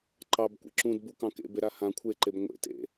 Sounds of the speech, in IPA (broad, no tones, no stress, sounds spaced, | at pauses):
ǃ ɑ b kʷ ḛ ǁ ũ d b u k ɑ̃ k ḛ b e ɾ a h ã kʷʰ e ǃ e b ŋʷ ḛ t ḛ